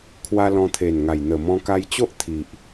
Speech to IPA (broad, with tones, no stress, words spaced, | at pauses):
kʰwa˧lɔ̃˧t̪ʰe˨˩nŋa˨˩j n̪ə˨˩mɔ̃˧ka˧jt͡ɕo˦ʔ t̪ʰi˨ʔ